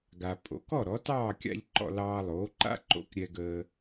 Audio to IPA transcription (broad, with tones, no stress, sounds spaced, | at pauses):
ɡ a˩ pʼ o̰˩ k ɔ˥˩ ɾ ɔ˩˥ t ɑː˥˩ kʲ a̰˧ ʎ ǃ ɔ̰˧ l ɑː˧ lˠ oː˩˥ ǃ a̰˥ ǃ o̰˧ k ɾʲ ɛ˧ ɡ əː˧